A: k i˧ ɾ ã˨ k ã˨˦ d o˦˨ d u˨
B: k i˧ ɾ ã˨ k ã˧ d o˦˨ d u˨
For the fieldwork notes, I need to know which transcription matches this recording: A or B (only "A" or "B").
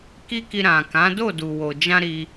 A